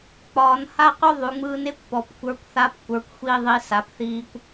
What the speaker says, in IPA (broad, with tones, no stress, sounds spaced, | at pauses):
k͡p ɒː˩˧ n h a˥ q ʉ˥ ðˤ ʉ˩˧ ŋ͡m ɯː˧ n e˧˥ kʷ p ɔ˩˧ p kʷ ə˞˧ kʷ θ a˧˥ p kʷ ə˞˩˧ kʷ xʷ i˧ ðˤ i˧ s a˩˧ p θ iː˧ kʷ